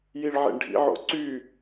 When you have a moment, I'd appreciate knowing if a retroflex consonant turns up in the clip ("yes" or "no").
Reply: yes